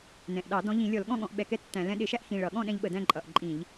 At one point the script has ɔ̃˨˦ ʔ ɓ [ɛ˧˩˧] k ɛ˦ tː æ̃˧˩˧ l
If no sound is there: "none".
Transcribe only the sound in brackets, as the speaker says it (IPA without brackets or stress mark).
ɛ˧˩˧